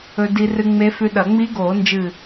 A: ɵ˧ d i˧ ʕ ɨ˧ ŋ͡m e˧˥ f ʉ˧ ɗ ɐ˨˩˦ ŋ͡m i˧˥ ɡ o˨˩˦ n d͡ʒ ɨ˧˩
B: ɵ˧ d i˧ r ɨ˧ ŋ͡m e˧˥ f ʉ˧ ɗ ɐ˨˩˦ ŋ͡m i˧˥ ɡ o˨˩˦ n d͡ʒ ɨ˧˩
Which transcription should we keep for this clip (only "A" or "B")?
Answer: B